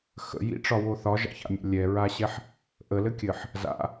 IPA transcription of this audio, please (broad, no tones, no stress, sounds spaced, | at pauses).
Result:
x ə̰ j ḭ ʈ͡ʂ ɒ w o θ ɒ ʒ ɑ̰ ç a̰ mʲ a̰ lʲ ɛ ɹ a ɕ ɛ ħ | ʔ ə l ɘ kʲ ɘ ħ | z a̰